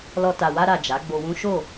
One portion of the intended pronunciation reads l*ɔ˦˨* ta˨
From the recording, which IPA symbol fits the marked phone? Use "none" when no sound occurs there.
ɔ˧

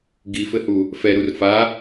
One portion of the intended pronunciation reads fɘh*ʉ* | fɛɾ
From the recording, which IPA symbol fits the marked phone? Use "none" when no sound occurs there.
u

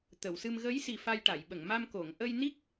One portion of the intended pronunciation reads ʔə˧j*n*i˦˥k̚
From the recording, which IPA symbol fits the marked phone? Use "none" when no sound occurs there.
n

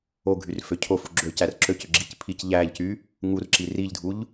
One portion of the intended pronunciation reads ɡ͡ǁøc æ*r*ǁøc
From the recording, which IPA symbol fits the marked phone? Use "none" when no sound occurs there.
r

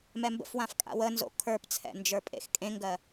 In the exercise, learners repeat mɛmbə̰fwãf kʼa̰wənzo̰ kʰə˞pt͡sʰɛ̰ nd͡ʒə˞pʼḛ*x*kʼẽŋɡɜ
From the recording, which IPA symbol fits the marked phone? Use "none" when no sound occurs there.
x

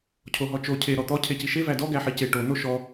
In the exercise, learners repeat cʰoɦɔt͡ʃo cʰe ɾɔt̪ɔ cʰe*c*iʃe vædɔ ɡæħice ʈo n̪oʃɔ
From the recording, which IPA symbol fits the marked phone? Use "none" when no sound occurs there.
c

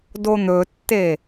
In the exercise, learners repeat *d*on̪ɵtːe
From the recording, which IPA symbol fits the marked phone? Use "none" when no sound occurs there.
d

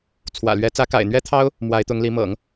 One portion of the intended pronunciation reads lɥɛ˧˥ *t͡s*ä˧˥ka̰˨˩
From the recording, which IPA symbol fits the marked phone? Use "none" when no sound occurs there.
t͡s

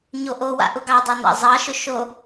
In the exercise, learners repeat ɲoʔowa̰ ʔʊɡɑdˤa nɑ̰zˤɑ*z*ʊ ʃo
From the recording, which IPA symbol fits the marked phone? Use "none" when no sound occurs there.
ʃ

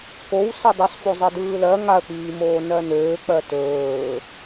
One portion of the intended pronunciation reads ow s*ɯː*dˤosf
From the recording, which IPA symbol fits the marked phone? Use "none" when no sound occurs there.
ɯ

